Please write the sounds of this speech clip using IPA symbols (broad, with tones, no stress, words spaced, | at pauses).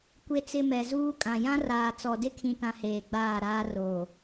kʷe˨t͡sɪ˨ mɛ˨zuː˦kʼã˨ jã˦raː˨t͡sɔ˨ dɪ˦kʰĩ˨tã˨ heː˨ɡ͡baː˦˨ɾaː˦ roː˨